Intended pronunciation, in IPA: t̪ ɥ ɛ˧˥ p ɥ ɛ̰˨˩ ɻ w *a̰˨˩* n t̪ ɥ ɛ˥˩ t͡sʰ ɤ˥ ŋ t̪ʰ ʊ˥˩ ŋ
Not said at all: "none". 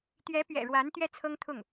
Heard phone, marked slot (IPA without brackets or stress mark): a˧˥